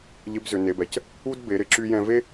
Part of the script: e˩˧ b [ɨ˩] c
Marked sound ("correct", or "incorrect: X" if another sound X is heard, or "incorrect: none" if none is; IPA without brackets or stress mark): incorrect: ɛ˩